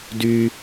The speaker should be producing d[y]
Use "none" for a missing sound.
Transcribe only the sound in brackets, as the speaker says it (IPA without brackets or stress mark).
y